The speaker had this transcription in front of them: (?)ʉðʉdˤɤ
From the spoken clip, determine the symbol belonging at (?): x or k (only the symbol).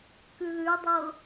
k